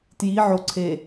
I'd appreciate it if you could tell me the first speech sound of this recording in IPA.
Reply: t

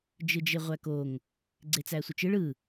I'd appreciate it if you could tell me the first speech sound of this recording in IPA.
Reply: d͡ʒ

